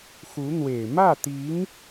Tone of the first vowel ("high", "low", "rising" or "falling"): rising